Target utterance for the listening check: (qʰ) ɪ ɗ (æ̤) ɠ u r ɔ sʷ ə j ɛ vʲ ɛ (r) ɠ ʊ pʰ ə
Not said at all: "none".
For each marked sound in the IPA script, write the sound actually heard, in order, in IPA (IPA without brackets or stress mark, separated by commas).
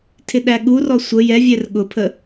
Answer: tʰ, æ, r